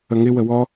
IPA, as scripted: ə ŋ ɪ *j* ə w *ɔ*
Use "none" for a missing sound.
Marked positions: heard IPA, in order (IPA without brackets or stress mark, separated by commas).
w, ɔ